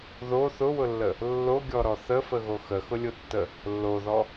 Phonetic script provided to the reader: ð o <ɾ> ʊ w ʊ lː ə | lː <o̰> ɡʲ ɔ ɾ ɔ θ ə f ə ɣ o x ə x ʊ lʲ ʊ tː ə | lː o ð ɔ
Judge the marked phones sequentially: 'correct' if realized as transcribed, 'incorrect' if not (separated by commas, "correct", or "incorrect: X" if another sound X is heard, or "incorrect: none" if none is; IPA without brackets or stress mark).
incorrect: θ, incorrect: o